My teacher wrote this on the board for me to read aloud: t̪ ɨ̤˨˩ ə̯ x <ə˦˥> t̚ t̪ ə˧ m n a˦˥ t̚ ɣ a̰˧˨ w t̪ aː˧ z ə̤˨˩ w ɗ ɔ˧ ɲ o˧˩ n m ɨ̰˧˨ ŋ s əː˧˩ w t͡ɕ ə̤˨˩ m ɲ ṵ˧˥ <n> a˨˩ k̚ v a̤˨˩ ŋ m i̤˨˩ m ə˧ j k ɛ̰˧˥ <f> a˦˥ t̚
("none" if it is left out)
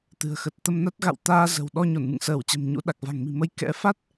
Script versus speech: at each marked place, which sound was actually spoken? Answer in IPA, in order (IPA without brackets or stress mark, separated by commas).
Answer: ə˨˩, ɗ, f